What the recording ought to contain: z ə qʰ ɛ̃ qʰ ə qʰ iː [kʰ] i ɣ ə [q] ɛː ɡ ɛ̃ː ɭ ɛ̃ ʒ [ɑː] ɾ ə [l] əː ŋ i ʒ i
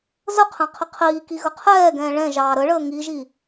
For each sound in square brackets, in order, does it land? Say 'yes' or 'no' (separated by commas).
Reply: no, no, yes, no